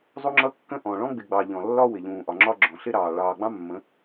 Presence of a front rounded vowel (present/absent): absent